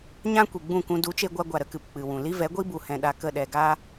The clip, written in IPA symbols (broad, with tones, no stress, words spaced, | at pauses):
ɲã˧ kʷi˨ɡ͡bũ˦˨kũ˧ du˨˦t͡ʃe˧ɡʷa˧ ɡʷa˨ɾə˧kɨ˨p k͡pɨ˨wũ˨ li˦vɛ˨˦ɡʷi˦ bu˨hɛ̃˧ɗa˧ kə˦˨ɗɛ˨ ɡa˦